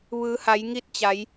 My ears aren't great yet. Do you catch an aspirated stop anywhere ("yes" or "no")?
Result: no